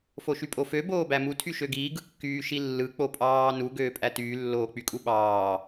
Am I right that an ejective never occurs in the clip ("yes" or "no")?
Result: no